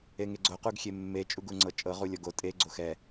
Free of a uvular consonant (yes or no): no